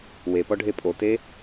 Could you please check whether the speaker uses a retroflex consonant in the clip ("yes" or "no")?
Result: yes